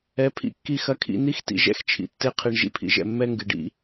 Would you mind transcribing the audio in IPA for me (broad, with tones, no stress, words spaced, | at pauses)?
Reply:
ɛ˨˦pʰḭ˧ kːi˧xɐ˧kʰḭ˧ni˦x tḭ˧ʒɛ̰˦x t͡ʃʰḭ˨tːe˧qʰi˨ɳ ʒḭ˧pʰḭ˨ʒɛ̰˨ mːɛ˦ŋɡɨ˨ɖḭ˧